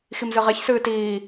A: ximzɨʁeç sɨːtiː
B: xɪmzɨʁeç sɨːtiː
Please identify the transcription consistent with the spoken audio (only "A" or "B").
A